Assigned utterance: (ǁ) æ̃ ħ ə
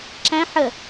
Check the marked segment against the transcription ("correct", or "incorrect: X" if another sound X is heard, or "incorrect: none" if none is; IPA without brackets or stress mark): correct